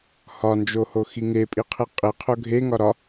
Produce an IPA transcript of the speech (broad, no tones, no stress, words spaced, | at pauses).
hɒnd͡ʒohoxi ŋepʼiqʰi qʼiqʰo ɡʱeŋɒ ɾɒ